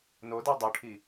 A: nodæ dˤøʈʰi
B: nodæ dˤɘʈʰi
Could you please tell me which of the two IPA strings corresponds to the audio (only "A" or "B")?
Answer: A